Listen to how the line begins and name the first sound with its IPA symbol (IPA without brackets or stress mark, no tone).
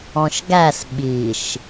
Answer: ɔ̃